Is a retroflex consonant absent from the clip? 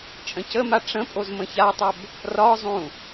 no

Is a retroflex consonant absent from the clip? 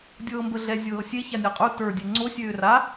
yes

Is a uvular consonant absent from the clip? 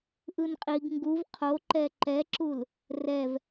no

